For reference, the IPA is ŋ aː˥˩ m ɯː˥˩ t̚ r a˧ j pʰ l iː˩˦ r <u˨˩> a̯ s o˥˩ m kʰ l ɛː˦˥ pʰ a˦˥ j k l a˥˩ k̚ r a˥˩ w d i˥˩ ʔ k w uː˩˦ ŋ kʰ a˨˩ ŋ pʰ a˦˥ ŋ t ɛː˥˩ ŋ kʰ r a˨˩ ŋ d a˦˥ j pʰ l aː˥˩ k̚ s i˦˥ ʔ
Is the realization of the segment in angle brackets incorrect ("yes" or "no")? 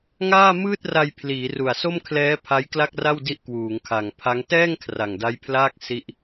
no